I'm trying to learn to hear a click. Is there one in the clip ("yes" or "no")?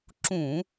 yes